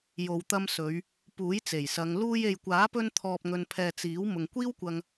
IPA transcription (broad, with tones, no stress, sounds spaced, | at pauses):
j o˨ w t̪ ɐ˧ m s ɵ˨˧ ɥ | p uː˨˥ j t͡s e˨˩ j s ɐ˨˧ ŋ l uː˧ j e˨ j kʷ aː˨˥ p ɵ˧ n t̪ʰ ɔː˨ p̚ ŋ ɵ˨ n pʰ ɛː˨ t͡s iː˨˥ w m ʊ˨ ŋ kʷ iː˥ w kʷ ɐ˧ ŋ